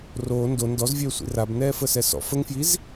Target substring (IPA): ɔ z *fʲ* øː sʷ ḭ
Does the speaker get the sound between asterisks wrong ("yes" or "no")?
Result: yes